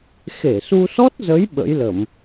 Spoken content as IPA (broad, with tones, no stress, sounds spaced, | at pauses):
x e˧˩ s u˧ s ɔ˦˥ t̚ z ə˨˦ j ɓ ə̰˧˥ j l ə˧˩˨ m